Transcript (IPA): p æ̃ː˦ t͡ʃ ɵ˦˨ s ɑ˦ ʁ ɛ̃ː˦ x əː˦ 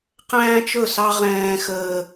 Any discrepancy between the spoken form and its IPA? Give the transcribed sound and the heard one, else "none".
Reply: p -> q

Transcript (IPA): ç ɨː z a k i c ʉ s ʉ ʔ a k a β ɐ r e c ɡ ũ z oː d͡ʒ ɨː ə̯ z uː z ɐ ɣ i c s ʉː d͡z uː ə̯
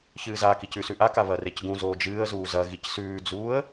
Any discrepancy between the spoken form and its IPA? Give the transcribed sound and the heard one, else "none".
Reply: none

